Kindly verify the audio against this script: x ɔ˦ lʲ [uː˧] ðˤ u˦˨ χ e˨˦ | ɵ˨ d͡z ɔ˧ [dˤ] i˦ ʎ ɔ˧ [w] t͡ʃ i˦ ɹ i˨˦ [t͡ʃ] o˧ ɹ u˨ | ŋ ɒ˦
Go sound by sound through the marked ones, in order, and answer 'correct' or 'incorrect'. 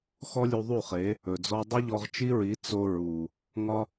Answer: incorrect, correct, incorrect, incorrect

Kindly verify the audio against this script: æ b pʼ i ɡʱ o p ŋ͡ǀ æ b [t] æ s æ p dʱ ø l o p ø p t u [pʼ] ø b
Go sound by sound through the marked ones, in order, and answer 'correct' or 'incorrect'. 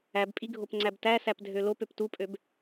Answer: correct, correct

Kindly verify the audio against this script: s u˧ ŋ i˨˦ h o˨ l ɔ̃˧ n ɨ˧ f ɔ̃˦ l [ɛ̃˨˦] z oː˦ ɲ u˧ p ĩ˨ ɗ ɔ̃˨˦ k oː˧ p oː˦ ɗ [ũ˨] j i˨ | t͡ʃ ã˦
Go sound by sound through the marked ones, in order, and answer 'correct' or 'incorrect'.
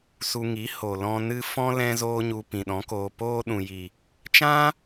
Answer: incorrect, correct

